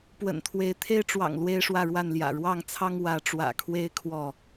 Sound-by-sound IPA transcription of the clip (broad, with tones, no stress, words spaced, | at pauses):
pwə̰˨˩nt̪ʰwe˨˦ɪ̯ t̪ʰe˦ɪ̯ʈ͡ʂwɑ̰˨˩ŋ lwe˦ɪ̯ʂwä˥˨ɻwa˥˨nljä̰˨˩ ɻwɑ˥˨ŋt͡sʰɑ˦ŋ wä˨˦ʈ͡ʂwä̰˨˩kʰwe˦ɪ̯ kʰwɔ˥˨